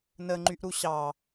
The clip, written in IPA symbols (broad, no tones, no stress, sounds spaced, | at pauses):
n ə ŋ͡ǃ y ʔ ɾ u ɕ ɑ